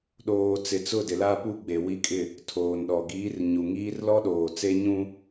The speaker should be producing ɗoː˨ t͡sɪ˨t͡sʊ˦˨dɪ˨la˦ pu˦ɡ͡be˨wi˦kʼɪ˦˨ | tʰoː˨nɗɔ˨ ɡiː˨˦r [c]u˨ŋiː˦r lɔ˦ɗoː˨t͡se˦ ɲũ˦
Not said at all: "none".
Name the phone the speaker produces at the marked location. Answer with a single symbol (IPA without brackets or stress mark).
ɲ